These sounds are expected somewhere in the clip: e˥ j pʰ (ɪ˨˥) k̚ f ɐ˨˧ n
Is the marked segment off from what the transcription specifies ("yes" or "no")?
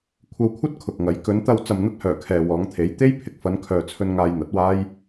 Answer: no